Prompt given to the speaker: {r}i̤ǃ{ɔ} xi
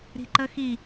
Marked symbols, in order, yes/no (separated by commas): no, no